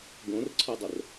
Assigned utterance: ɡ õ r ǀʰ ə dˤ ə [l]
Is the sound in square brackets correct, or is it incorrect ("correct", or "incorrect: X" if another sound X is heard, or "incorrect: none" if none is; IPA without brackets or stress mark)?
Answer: incorrect: r